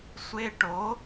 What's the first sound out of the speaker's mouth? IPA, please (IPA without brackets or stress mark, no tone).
sʷ